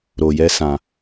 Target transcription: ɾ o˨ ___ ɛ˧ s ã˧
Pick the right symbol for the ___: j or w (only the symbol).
j